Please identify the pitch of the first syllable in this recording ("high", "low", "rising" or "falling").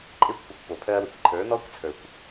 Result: falling